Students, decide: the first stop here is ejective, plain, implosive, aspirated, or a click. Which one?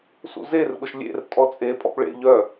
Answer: implosive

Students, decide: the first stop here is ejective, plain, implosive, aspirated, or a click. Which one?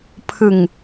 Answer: aspirated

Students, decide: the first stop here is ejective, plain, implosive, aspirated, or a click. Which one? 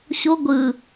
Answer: plain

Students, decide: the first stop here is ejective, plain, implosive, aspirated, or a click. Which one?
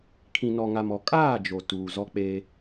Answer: aspirated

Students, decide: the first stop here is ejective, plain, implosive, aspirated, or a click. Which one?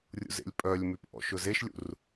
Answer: ejective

